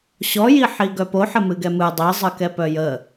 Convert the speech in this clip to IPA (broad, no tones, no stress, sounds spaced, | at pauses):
ɕ ɔ j i ħ i ɡ œ p o ħ ə m ɨ ɡ ɛ m ɨ dˤ i zˤ ɨ k ɛ p œ j ə